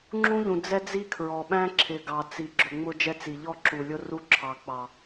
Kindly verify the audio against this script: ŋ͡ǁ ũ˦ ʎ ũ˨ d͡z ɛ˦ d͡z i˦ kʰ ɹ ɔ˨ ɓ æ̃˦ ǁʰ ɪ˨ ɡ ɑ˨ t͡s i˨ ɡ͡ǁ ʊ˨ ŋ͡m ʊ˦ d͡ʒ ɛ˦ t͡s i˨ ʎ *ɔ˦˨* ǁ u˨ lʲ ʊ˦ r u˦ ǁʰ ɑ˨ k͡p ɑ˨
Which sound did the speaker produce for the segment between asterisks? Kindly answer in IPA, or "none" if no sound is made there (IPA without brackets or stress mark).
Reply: ɔ˦˨